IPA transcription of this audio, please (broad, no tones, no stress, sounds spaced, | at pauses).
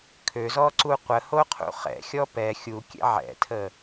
kʰ ø z ɔ ǀ u qʷ ə h o qʰ ṵ χ ɛ̰ xʲ ɔ p ɛ xʲ u kʲ ɛ̰ ʕ ɛ̰ tʰ ə